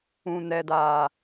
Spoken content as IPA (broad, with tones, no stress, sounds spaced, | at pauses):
ũ˨ n ɛ˨ d a˨